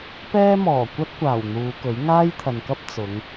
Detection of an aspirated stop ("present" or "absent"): present